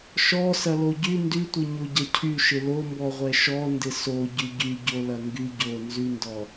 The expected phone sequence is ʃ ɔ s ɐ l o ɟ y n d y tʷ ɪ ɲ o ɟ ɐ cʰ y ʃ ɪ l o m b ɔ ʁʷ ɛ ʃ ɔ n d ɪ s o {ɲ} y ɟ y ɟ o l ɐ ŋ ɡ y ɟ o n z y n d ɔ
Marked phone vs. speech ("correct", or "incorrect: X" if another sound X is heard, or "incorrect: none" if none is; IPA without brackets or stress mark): incorrect: ɟ